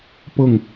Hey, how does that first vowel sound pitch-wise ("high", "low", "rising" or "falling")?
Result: falling